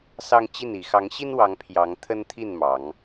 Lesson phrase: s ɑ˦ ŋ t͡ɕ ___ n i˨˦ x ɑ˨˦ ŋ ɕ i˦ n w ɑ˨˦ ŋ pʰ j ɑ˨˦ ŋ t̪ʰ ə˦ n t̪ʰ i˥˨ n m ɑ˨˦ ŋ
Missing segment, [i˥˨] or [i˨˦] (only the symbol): i˥˨